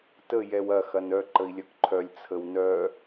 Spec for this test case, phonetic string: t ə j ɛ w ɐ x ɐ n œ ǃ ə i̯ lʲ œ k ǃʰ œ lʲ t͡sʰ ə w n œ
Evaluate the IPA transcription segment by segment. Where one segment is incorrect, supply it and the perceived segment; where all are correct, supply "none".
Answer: none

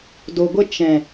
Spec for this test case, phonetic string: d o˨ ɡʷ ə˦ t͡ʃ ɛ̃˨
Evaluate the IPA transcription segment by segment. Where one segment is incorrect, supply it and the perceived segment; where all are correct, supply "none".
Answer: none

